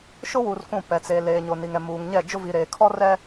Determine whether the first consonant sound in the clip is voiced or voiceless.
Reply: voiceless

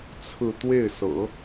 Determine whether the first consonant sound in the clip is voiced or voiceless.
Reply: voiceless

